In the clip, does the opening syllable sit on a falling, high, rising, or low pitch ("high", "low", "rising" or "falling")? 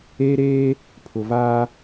high